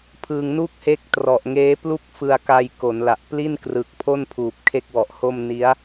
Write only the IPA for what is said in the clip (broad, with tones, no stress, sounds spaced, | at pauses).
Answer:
pʰ ɯ˧ ŋ n u˥˩ k̚ h e˦˥ k̚ t r ɔ˨˩ ʔ ŋ eː˦˥ p l u˥˩ k̚ f ɯ˧ a̯ k a˧ j k o˩˦ n l a˨˩ ʔ p l i˥˩ n k r ɯ˨˩ k̚ pʰ o˥˩ n pʰ uː˨˩ p̚ kʰ e˥˩ k̚ w ɔ˨˩ ʔ h o˥˩ m n i˦˥ a̯